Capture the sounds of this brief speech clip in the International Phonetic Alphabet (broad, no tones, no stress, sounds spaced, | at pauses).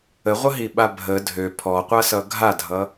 ə ʁʷ ɐ ɦ i ɓ a bʱ ə dʱ ø pʰ ɔ qʷ a s ʌ ɡʱ a dʱ ʌ